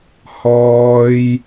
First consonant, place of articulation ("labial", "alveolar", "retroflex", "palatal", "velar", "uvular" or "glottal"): glottal